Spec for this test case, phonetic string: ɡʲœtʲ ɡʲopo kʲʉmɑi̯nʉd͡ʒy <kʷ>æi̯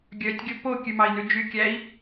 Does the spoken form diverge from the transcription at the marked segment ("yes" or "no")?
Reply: yes